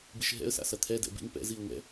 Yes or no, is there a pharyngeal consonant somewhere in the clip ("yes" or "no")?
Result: no